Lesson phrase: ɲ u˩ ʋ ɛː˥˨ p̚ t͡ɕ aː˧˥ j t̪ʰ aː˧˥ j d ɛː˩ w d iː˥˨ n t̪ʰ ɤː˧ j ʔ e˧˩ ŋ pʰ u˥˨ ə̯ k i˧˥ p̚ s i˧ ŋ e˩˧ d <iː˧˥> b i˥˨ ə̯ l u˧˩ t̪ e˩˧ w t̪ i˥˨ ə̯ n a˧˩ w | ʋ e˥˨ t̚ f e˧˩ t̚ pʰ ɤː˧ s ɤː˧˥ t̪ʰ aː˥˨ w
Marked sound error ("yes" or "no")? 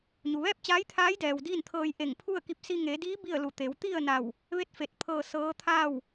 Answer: no